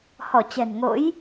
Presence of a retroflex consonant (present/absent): absent